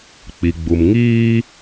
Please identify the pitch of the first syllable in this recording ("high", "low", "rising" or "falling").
low